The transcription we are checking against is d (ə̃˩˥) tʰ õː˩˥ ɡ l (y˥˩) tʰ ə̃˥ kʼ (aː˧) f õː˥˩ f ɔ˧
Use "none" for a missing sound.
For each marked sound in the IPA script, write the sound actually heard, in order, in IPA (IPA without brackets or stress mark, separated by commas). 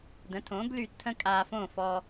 ə̃˩˥, y˥˩, aː˧